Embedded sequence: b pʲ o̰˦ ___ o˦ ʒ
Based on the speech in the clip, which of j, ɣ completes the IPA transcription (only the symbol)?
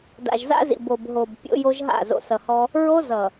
j